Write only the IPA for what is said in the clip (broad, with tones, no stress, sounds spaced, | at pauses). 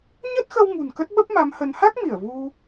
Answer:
ɲ ə˦˥ t̚ x ə˧ w ŋ ṳ˨˩ n k ə˦˥ t̚ ɓ ə˦˥ p̚ m a˨˦ m h ə˨˦ n h a˦˥ k̚ m i˧˩ ə̯ v u˧